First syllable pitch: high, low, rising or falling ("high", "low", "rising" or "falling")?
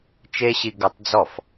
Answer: high